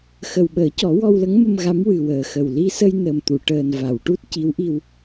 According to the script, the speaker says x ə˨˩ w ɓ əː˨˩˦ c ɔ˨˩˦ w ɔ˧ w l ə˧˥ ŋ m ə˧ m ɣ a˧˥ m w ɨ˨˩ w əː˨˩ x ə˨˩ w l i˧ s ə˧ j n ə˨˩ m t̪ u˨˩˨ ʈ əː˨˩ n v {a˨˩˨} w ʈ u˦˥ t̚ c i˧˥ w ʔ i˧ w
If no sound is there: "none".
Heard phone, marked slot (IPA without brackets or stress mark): a˨˩˨